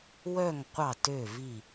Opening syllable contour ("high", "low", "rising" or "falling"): falling